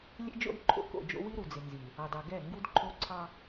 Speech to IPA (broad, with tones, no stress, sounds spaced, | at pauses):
lʲ ḛ˦ d͡ʒ o̰˦ d ǃʰ o̰˦ k o̰˦˨ d͡ʒ o̰˦ w i˦ ɾ u˨ d͡z ɪ˨ n z i˨ | ɑ˨ d ɑ˨ ɡ ɛ˦˨ ŋ ɡ u˦ d ǃʰ o˦ ǀʰ ɑ˦